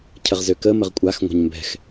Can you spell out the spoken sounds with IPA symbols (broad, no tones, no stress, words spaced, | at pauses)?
cʰəʁzøkə məʁkʷʼax ŋʷa̤ɲmbɛ̤x